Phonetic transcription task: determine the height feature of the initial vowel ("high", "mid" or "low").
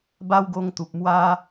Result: low